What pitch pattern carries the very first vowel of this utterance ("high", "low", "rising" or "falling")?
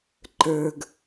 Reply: low